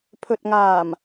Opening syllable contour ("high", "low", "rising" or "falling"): low